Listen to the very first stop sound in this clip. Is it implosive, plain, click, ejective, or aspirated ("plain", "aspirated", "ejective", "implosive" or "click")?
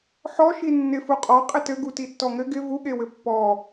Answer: ejective